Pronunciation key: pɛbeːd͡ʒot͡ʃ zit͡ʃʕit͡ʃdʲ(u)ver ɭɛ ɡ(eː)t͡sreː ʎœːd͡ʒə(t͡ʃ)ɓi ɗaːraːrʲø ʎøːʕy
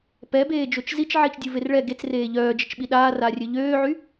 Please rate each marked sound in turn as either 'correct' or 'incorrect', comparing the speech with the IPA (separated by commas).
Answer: correct, incorrect, correct